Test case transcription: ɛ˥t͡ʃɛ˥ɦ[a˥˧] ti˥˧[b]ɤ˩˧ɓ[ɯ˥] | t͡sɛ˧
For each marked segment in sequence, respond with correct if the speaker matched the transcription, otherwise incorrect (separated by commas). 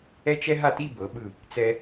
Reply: correct, correct, incorrect